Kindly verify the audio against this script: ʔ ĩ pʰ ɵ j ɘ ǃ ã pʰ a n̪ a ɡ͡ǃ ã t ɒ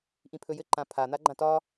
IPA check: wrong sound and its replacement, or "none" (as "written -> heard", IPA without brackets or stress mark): none